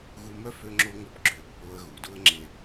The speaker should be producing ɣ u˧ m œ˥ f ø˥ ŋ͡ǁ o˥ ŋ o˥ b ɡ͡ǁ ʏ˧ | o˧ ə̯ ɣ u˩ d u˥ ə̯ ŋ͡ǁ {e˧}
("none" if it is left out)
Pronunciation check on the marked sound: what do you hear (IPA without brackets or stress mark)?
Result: e˧